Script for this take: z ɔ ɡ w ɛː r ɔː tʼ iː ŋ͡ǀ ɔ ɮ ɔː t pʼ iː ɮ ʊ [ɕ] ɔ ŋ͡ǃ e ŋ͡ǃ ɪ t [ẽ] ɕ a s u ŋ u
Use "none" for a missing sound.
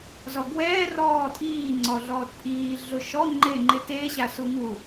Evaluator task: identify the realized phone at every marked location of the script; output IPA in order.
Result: ʃ, e

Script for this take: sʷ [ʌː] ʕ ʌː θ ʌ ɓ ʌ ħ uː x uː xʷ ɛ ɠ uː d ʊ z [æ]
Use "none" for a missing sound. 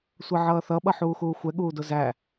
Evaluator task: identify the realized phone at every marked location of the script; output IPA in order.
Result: ʌ, æ

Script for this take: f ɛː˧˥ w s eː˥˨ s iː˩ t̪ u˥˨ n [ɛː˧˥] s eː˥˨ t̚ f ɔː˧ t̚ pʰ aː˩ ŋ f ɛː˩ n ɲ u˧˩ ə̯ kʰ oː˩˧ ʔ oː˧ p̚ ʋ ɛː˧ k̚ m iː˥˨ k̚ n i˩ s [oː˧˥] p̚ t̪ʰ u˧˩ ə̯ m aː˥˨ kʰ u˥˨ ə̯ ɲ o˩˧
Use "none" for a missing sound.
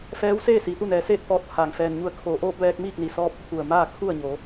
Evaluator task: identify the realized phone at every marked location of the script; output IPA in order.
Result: ɛː˩˧, ɔː˧˥

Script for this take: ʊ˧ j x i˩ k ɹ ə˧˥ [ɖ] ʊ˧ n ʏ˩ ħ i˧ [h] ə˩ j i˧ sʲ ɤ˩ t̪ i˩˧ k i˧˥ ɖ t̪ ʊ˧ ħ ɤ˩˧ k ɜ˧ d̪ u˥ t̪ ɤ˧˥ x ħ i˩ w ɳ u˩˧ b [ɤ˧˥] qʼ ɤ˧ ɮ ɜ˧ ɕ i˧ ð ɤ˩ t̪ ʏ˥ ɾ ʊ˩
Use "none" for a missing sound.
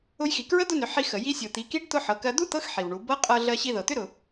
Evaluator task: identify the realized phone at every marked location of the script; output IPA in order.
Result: d̪, x, ɤ˧˥

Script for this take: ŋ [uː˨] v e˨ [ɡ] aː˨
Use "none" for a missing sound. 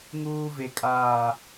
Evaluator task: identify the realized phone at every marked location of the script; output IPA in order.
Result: uː˨, kʼ

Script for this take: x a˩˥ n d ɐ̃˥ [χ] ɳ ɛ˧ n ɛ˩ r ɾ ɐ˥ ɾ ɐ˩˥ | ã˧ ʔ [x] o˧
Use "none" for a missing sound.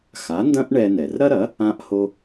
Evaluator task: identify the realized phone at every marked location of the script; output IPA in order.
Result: ʔ, h

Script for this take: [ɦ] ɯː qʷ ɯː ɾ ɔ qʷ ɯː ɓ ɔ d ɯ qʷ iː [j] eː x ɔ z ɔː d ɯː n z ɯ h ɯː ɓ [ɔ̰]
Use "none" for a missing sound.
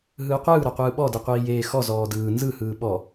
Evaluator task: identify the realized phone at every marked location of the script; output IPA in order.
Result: ɦ, j, ɔ

